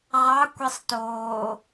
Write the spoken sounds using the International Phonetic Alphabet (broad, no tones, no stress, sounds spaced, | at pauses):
ʁ ɑ kʷ i sˤ t oː